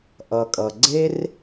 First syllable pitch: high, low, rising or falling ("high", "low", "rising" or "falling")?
low